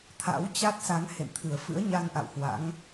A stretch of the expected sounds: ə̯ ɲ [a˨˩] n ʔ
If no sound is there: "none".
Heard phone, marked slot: a˧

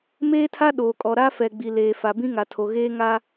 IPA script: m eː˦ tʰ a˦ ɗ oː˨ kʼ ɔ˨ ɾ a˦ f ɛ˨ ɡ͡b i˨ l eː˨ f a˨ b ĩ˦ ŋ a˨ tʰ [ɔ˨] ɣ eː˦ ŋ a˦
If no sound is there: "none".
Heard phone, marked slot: o˨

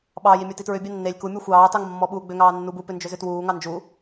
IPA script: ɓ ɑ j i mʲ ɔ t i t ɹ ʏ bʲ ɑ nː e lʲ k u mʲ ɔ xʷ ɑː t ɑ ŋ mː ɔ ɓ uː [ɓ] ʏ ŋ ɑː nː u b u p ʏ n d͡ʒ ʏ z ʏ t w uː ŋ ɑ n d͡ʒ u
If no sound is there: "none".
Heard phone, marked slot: ɡ͡b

